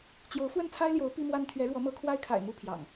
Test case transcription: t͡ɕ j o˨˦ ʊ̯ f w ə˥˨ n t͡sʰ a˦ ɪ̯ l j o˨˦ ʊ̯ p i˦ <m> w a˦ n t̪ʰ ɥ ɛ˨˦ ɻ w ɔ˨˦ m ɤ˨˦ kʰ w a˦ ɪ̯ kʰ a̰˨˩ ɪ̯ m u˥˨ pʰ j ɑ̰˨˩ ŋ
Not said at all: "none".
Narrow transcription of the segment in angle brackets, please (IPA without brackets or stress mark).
m